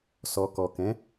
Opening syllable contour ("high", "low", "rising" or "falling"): low